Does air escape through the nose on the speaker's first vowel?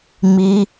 no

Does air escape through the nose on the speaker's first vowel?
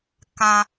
yes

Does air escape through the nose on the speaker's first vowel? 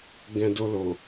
yes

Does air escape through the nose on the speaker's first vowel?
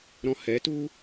yes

